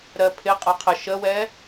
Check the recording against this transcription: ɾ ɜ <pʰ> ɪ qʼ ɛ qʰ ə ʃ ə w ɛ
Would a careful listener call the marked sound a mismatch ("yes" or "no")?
no